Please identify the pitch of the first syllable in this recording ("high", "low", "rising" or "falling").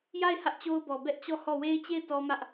falling